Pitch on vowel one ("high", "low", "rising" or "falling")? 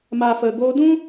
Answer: low